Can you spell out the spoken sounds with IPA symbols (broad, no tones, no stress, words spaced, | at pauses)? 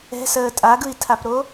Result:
ɛ̤səː tʼaɡɯi̯tʰapɾo